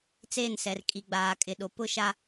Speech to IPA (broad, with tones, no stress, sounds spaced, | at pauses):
t͡s eː˦˨ n s ɛ˨ r kʼ i˨ ɡ͡b aː˨ kʼ ɪ˨ ɗ o˨ p ʊ˦ ʃ a˦